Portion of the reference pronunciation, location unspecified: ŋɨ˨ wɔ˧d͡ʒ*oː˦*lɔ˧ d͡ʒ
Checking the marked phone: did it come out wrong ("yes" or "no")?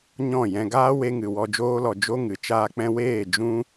no